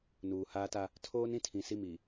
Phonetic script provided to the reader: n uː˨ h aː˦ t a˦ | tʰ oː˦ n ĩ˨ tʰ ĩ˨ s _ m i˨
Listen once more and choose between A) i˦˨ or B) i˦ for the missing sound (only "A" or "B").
A